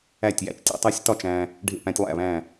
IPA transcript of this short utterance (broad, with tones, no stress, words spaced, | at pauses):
æ˥˩tʲjæ̰˥˩t͡ʃtʲḛ˦ tˤæ˦sʲtɒ˥˩t͡ʃ æ̃˦ | ɖʱḛ˥˩pæ̃˦tʲlˠæ̰˥˩βæ̃˥˩